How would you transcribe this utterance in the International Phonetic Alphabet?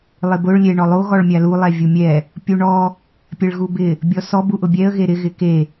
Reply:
lˠ ɪ b ʊ ɭ lʲ e ɳ ɔ lˠ o ɣ ɔ ɭ mʲ a l u lˠ ɛ vʲ u mʲ ɛ | pʲ u ɳ ɔ | pʲ e ɭ ɣ u b ɪ | bʲ ɔ s ɔ b u ʔ ʊ bʲ ɛ ə̯ ɣ e ɾ ɪ ɣ ɪ k e

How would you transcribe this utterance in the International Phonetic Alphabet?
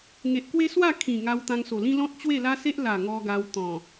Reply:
ŋ e˨ ʔ k w e˦ s w a˥˧ kʰ ĩ˨˩ ŋ a˧ w t̪ ã˧ ŋ s o˨˩ l ĩ˦ l ɔ̃˦ t̚ t͡ɕ w e˥˧ l a˦ s e˦ ʔ l a˨˩ ŋ ɔ˧ ɡ a˧ w t̪ ɔ̃˨˩

